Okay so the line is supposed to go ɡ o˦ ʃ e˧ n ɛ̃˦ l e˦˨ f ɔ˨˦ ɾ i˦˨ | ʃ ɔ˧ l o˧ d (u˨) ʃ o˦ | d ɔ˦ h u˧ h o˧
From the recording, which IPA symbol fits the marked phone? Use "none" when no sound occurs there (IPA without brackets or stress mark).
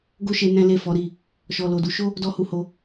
u˧